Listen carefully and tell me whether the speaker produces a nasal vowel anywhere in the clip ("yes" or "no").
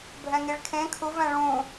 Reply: yes